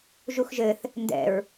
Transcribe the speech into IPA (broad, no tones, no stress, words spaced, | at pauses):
ʒuxʒɘθ | ndɛ̰ɹ